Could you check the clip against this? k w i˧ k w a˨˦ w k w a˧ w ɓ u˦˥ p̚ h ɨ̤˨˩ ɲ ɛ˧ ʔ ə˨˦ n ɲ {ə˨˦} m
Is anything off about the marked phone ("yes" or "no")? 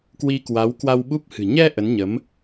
no